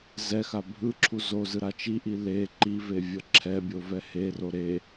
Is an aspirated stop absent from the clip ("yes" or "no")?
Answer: no